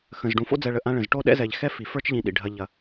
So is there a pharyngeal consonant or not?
no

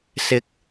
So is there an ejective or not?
no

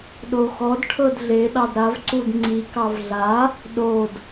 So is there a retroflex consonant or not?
yes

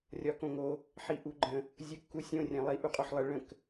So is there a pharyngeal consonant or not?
yes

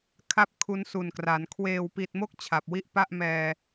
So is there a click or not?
no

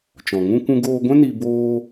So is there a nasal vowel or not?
yes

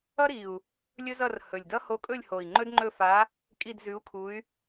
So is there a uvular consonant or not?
no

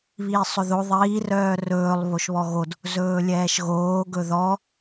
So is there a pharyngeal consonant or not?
no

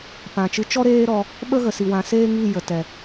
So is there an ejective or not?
no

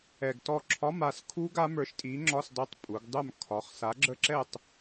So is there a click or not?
yes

